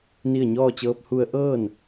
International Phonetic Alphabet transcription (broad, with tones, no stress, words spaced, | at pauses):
ni˥˨ə̯ ɲɔː˥˨t͡ɕɤː˧˥p̚ hu˧˥ə̯ ʔɤː˥˨n